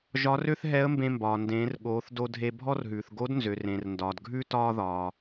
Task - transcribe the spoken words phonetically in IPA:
ʒ ɒ˧˥ r ø˥ θ ɦ ɛ˧˥ ə̯ m b ẽ˧ m b ɒː˩ n d ẽː˩˧ r ɠ oː˩˧ θ d o˧ dʱ e˧ bʱ ɔ˥ r ɦ ʉː˩ θ ɡ o˧˥ d n z ø˩ r ẽ˩ r n d ɒː˩ d ɡʱ ʉ˥ t ɒː˧ ð ɒː˩

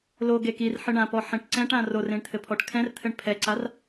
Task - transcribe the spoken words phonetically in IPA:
l o ɡ e k i r ħ ɨ ɳ ã p ɔ ħ ẽ ʈ ǀ ɛ̃ ʈ ã r o r ẽ ɳ t̪ʰ ɘ pʰ ɔ ʈ kʰ ɛ̃ r t̪ʰ ɘ ɳ pʰ ɛ ǀ a r

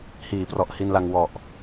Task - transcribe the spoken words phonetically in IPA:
h iː˩˦ p r ɔ˨˩ ʔ h i˧ n l a˧ ŋ w ɔ˨˩ ʔ

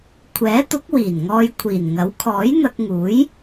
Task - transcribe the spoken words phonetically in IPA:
kʷʰ ɛː˨˥ t̪ ʊ˨˥ k̚ w iː˨˩ n ŋ ɔː˧ j kʷʰ iː˨˩ n ŋ ɐ˨˥ w kʰ ɔː˨˥ j n̪ ɐ˧ k̚ ŋ uː˨˥ j

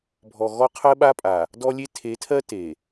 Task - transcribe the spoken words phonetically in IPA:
bʱ ɔ˨ ɣ ɔ˦ qʰ ɜ˦ ɓ a˦ pʼ a˨ | d ɔ˦ lʲ e˦ tʰ e˨˦ tʰ ɜ˦ t e˨

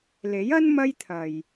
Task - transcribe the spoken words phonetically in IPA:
l e˨˥ j ɐ˥ n m ɐ˥ j t̪ʰ ɐ˨ j

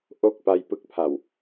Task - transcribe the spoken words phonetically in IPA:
ʔ o˥˩ k̚ p a˥˩ j p ɯ˥˩ k̚ pʰ a˨˩ w

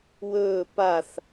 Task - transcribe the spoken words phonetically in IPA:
w ɵː p a θ

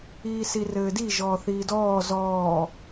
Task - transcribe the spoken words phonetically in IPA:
iː s i r ɘː d i ʒ ɔː θ iː d ɔː z ɔː

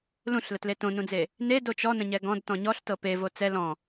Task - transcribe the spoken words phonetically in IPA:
l ũ ɬ l ə t l e t õ n ũ d͡z e | n e d o t͡ʃ ɔ n ə̃ ɲ ɛ ɡ ɔ̃ d t ɔ̃ ɲ ɔ ɬ t ɤ p e v o t͡s ɛ l ɔ̃

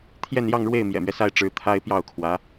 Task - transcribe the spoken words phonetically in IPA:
t̪ʰ j ɛ˥˧ n j ɑ˥˧ ŋ ɻ w e˥˩ ɪ̯ m j ɛ̰˨˩ m ɥ ɛ˦ s a˥ ɪ̯ ʈ͡ʂ ɻ̩˧˥ t̪ʰ a˥ ɪ̯ p j ɑ˥˩ ʊ̯ kʰ w ä˧˥

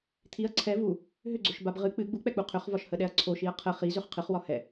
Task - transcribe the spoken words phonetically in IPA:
t̪ʰ i ɐ̯ ǀʰ ɛ v u | ɦ ʏ ɡ͡ǀ ø ʃ b a b ʁ ɨ k͡p ɨ ɡ͡b u k͡p ɛ k͡p u qʰ ʏ χ v ɒ ʃ h ə ɗ ɛ ɐ̯ ǀʰ o ʃ i ɐ̯ qʰ ə χ i z ø χ qʰ ɨ χ w ɒ h ɛ

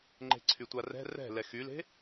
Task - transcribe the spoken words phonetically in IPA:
ŋ͡ǃ e̤ ǀʰ y tʷ a r ɛ̤ r ɛ̤ l ɛ x y l e̤

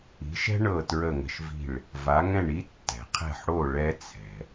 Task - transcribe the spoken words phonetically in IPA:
i̤˩˥ ʃ ɛ̤˥ ɳ ɤ˥˩ t ɹ ə˥˩ ŋ ə̤˧ ʃ v i̤˥˩ ɭ | v a˩˥ ŋ ɛ̃˥˩ ɳ i˥ tː ɛ̤˩ qʰ ɛ̤˥˩ ħ ɽ o˥˩ ɭ ɛ˥ t͡sʰ ɛ̤˩

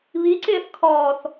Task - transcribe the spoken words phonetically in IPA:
β i ǀ ɪː θ kʰ ɔː θ

